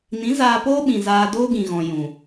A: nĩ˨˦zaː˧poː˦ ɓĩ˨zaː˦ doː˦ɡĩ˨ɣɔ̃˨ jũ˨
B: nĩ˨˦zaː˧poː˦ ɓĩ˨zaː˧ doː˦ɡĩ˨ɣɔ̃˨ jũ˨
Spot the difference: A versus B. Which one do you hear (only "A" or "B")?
B